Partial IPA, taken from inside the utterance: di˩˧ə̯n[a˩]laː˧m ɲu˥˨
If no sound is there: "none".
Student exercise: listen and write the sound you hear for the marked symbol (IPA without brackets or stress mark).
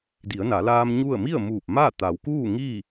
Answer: a˩˧